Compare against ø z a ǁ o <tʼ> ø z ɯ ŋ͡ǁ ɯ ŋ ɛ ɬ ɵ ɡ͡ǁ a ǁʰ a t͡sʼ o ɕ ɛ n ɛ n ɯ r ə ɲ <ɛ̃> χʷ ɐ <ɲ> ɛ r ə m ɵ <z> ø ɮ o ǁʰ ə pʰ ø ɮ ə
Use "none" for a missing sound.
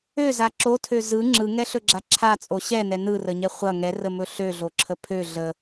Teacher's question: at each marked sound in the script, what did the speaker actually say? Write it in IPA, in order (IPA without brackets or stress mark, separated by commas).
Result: tʰ, ɛ, ŋ, ɬ